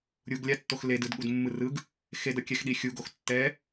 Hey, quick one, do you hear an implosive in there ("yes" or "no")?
yes